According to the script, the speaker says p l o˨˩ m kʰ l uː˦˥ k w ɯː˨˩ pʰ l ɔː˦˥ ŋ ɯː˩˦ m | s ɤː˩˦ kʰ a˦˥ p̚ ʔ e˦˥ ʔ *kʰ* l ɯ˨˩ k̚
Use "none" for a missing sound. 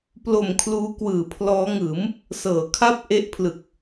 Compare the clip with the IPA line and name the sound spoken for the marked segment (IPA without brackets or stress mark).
pʰ